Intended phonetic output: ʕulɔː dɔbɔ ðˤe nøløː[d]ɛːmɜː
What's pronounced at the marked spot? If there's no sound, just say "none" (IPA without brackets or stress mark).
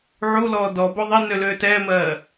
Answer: t